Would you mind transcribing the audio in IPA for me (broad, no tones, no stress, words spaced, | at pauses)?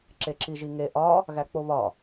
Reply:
ǁeǁiʒiŋe ʔɒ | ɣæk͡poβɒ